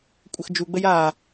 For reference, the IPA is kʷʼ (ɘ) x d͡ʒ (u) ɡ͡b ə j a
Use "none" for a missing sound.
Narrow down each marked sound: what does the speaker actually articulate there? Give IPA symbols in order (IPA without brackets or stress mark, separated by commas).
ɘ, u